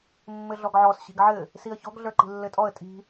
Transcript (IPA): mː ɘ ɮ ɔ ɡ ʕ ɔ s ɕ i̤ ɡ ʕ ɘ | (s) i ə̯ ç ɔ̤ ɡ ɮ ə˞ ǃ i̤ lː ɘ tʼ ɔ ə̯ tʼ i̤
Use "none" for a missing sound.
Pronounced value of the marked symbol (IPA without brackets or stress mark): s